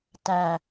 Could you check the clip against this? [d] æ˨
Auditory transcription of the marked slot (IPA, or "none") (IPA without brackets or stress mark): t